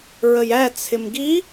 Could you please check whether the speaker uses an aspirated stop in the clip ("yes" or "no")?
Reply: yes